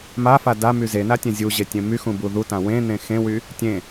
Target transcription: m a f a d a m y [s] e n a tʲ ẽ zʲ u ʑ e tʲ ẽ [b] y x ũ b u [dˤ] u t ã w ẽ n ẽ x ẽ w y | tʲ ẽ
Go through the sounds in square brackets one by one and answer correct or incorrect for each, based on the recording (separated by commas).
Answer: incorrect, incorrect, incorrect